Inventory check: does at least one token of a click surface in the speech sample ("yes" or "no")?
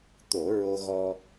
no